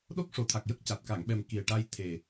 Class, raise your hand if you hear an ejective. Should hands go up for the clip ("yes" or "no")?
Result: no